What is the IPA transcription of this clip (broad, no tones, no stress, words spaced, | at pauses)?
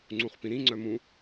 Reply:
ŋ͡ǀũχpĩɾĩ ŋ͡ǀœmũ